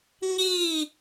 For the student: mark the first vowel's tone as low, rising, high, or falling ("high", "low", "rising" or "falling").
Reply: falling